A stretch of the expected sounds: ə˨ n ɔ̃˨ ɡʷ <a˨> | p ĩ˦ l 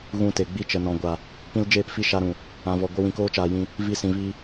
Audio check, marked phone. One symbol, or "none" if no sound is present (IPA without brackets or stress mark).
a˨